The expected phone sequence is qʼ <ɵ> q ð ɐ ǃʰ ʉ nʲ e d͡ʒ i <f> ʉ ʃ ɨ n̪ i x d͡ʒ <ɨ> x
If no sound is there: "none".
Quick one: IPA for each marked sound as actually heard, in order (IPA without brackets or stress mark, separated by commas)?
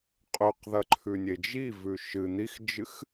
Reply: ɵ, v, ɨ